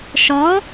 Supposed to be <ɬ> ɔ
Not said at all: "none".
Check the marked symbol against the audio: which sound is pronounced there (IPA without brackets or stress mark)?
ʃ